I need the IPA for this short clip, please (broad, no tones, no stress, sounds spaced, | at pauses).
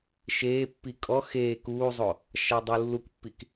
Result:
ʃ eː pː i kʼ ɔ x eː k uː zˤ o | ʃ a dˤ u lː u k pː i k